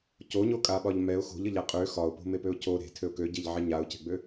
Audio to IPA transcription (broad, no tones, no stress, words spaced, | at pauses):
coɲokʼaɓɒʎ mɛʊ̯ xo̤ʎəʎa qʼø xɒʊ̯po̤mepøʊ̯ cʰo ɾe̤tʰøʊ̯ køɟeʎʕe ɲaʊ̯ce̤ɡ͡bø